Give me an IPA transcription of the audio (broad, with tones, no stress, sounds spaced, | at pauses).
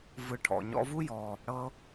v ɯ˧ ʈʰ ɔ̰˨ ɲ ɔ̰˧ v u˦ j ɔ˨ | ɽ ɤ˦